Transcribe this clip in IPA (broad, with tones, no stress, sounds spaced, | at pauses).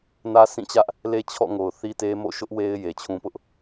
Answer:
n ä˦ sʰ ĩ˦˨ t͡ɕ ä˦ ʔ | l e˦ t͡ɕʰ ɔ̰˦˨ ŋ o˨ ʊ̯ θ i˦ t e˦ m o̰˦˨ ʃ ʊ˦ ʔ w e˦ ɪ̯ j e˨ t͡ɕʰ ũ˦ p ʊ˦ ʔ